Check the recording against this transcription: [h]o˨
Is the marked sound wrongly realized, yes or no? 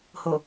no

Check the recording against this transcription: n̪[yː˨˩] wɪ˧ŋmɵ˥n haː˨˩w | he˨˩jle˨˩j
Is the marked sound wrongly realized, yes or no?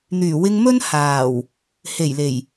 no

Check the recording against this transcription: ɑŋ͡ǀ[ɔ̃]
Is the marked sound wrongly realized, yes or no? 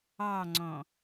no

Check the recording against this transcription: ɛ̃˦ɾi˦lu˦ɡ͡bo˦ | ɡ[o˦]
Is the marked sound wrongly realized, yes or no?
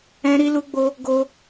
no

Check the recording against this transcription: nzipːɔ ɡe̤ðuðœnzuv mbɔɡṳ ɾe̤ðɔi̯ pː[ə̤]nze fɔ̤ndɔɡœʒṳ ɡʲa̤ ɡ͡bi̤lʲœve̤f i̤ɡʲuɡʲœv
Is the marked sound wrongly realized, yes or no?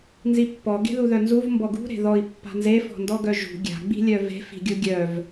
yes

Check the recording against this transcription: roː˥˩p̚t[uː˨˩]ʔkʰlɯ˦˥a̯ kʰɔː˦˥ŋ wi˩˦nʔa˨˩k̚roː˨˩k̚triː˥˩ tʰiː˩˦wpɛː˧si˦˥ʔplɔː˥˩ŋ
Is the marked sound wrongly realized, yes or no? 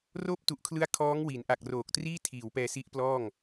yes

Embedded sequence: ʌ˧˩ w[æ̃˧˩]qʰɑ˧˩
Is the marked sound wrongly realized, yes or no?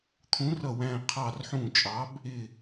no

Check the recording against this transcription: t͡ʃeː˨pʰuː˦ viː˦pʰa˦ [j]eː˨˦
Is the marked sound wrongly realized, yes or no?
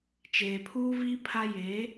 no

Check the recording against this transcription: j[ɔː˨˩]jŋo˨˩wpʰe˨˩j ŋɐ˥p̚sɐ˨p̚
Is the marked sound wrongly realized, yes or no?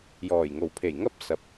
no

